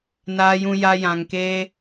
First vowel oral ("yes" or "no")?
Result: yes